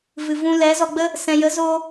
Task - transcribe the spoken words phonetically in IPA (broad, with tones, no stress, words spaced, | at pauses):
vɨ˨vũ˧lɛ˨˦zɔ˧ ɡ͡bə˦ | sɛ̃˨jə˨˦ zoː˧